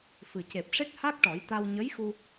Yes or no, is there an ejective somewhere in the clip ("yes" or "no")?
no